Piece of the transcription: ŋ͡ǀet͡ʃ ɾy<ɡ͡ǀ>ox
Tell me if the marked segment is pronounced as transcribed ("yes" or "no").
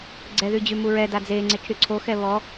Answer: no